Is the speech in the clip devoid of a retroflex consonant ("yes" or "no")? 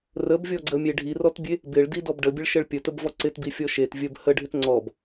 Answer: no